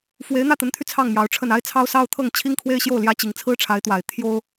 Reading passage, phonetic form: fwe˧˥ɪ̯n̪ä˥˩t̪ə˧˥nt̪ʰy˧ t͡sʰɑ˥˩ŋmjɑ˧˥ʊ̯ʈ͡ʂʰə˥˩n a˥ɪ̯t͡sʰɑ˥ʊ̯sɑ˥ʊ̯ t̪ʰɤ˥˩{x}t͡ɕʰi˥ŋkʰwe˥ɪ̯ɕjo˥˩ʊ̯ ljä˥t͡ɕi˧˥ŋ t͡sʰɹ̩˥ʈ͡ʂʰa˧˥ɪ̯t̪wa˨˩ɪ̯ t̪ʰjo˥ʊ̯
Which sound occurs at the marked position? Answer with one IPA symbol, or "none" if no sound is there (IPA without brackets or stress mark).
ŋ